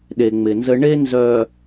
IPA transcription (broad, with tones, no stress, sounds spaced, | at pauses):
ɗ e˨ ŋ͡m ɪ˨ n z ə˦ ɳ e˦ n z œ˨